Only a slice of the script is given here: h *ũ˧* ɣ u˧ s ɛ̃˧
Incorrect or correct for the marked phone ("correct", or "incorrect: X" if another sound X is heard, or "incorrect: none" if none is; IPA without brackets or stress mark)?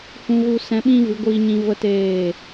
correct